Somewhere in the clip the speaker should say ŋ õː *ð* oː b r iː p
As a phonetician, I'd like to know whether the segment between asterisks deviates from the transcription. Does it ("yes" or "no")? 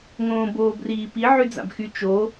yes